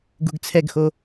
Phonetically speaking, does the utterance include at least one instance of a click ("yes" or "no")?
no